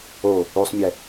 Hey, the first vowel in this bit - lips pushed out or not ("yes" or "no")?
yes